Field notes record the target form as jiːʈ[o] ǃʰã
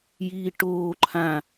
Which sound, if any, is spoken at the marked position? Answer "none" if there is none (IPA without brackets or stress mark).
oː